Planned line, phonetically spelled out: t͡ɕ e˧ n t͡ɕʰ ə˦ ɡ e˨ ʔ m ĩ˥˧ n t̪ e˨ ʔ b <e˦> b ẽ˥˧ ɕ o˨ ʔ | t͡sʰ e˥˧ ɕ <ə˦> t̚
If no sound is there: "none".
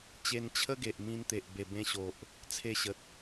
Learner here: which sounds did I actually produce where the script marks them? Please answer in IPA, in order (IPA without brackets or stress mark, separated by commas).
e˨˩, ə˨